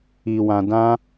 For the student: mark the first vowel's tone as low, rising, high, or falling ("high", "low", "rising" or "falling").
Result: low